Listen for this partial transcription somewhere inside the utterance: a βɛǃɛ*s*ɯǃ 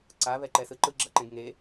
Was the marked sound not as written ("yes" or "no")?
no